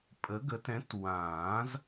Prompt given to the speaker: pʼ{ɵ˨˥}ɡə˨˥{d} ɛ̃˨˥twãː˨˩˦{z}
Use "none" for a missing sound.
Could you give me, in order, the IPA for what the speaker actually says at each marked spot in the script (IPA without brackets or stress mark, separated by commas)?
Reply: ə˨˥, t, z